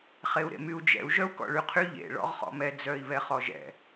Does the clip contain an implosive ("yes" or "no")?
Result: no